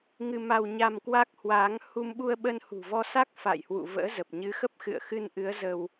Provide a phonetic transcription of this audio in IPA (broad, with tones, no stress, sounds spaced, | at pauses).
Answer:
ŋ ɨ˧ m a˧ w ɲ a˧ m k w a˦˥ k̚ h w aː˨˦ ŋ h u˧ m ɓ u˧ ə̯ ɓ ə˧ n h ṳ˨˩ v ɔ˧ s a˦˥ k̚ f a̰ː˧˨ j h w ṵ˧˨ v ə̰ː˧˥ z ə˨˩ p̚ ɲ ɨ˨˦ x ə˦˥ p̚ x ɨ̰˧˨ ə̯ x ɨ˧ n ʔ ɨ˨˦ ə̯ z ə˧ w